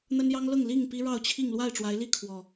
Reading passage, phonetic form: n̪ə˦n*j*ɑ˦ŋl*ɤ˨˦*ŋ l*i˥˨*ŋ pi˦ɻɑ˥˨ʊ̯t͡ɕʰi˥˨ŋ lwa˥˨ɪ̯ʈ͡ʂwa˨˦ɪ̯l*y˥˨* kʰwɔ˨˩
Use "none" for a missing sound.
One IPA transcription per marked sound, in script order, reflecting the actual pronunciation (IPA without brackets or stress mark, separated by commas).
j, ɤ˥˨, i˥˨, i˥˨